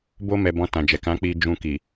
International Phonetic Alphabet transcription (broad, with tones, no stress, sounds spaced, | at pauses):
b o˧ m ɛ˨ b ɔ̃˧ t ã˨ d͡ʒ ɛ˨ k ã˨˦ k͡p i˧ d͡ʒ ũ˧ k i˨